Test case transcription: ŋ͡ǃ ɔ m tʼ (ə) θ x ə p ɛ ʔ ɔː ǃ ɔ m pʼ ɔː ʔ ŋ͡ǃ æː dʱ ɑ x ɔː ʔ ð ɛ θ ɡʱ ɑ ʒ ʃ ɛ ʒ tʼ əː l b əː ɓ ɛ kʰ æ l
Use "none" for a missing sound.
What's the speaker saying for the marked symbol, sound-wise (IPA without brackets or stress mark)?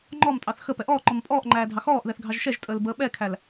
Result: ɑ